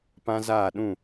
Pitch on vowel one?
high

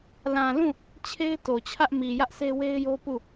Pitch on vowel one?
low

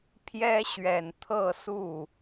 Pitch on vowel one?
high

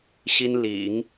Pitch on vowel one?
high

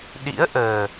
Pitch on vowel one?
rising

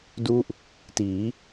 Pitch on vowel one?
falling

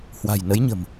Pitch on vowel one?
low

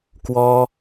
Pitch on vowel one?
high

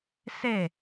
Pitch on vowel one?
falling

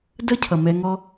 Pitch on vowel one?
high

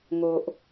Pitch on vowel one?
low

